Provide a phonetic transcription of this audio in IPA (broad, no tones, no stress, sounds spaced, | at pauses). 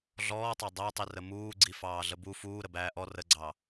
ɮ ɔː tˤ ɑ dˤ æ tˤ i r ə m uː ɡ͡ǀ i f ɑː ɮ ə b u f uː ɾ ə b æː ʔ ɔ r ə ɡ͡ǀ ɑ